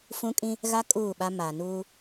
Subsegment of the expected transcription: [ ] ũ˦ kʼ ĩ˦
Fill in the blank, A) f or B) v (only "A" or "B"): A